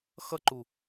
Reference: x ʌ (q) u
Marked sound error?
yes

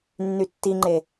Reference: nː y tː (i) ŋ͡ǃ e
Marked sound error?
no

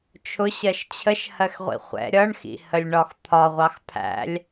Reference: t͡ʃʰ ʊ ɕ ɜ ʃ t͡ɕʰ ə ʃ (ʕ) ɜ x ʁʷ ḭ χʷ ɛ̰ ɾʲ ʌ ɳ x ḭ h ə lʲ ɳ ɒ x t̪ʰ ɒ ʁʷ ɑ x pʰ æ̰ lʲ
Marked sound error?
yes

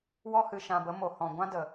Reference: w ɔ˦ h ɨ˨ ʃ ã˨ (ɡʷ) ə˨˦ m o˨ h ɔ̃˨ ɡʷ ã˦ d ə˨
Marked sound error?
yes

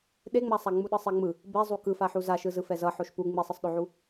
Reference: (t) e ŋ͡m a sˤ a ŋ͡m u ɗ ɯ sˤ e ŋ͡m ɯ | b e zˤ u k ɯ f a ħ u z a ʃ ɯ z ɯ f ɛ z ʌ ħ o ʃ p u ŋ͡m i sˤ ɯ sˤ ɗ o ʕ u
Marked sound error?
yes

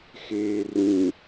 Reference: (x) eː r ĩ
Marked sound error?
no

